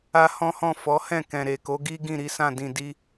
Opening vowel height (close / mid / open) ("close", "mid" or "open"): open